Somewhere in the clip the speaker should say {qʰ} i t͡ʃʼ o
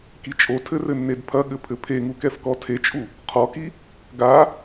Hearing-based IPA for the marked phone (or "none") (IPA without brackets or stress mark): k